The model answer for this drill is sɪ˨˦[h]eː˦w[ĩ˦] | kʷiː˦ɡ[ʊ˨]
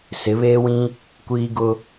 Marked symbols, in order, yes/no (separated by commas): no, yes, no